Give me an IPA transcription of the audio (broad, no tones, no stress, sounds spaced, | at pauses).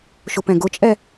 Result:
ʃ ʊ p ɛ̃ ɡ ʊ t͡ʃʼ ɛ